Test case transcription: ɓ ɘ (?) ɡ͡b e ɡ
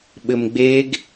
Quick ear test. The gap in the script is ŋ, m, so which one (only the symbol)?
m